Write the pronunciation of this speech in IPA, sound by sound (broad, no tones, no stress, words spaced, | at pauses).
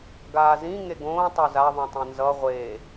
ɡaːzĩ ŋeɡõː tˤoza ðˤõtˤẽnzʌ ʁʷe